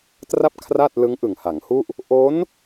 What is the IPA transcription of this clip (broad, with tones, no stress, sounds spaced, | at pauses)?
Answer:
t r a˥˩ p̚ kʰ r a˥˩ t̚ l ɯ˦˥ ŋ ʔ ɯ˨˩ ŋ h a˩˦ ŋ h u˥˩ ʔ | ʔ o˦˥ n